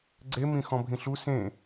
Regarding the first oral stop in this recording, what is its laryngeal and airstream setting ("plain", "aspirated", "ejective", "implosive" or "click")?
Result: click